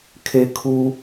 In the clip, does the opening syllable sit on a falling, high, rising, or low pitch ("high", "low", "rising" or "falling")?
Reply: low